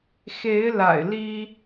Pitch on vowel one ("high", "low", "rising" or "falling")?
rising